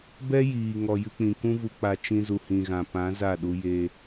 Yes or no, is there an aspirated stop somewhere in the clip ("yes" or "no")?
no